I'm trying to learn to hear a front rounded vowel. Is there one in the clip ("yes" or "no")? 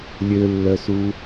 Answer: yes